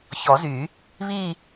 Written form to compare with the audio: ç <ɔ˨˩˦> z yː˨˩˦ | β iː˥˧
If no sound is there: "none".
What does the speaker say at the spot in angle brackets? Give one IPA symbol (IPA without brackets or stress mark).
ɔ˨˩˦